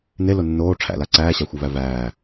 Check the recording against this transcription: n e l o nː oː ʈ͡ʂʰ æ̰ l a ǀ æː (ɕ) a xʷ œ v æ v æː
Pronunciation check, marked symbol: correct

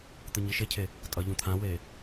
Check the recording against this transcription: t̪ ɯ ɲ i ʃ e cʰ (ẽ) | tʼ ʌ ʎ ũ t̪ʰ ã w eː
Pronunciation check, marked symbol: incorrect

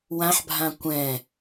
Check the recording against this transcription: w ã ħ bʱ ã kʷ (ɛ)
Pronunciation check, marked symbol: incorrect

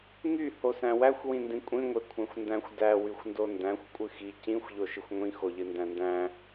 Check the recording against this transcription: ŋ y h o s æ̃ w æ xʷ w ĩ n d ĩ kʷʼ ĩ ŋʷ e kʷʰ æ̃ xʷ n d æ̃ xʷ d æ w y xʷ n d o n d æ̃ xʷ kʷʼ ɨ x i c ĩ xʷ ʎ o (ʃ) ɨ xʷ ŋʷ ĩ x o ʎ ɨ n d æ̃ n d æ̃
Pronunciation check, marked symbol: correct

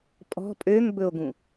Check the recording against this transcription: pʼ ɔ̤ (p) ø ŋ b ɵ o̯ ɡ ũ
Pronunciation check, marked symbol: incorrect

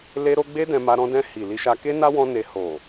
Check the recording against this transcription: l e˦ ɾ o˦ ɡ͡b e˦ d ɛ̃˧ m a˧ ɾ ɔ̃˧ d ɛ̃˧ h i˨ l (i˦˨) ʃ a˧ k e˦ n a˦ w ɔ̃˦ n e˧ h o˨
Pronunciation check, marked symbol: incorrect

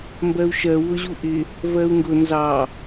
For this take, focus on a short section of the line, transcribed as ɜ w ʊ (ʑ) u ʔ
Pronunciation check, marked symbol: correct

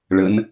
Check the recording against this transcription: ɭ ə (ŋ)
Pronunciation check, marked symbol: incorrect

